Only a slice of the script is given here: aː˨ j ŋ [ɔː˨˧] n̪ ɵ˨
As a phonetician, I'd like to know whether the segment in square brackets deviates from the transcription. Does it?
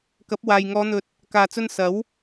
no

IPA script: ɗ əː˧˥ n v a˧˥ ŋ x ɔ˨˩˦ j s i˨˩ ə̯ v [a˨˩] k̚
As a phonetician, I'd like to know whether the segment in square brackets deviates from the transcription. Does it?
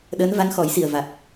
no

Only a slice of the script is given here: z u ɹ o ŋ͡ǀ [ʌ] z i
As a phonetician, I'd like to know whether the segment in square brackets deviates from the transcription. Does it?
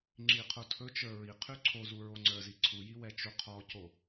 yes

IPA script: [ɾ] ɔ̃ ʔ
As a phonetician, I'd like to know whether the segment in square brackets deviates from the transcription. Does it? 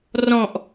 yes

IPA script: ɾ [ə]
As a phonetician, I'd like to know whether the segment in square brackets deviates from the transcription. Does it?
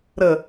no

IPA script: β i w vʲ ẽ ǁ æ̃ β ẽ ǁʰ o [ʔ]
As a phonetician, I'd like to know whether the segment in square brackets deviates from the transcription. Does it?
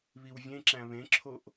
no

